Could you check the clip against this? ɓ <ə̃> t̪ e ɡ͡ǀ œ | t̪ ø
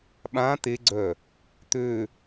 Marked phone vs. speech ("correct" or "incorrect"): incorrect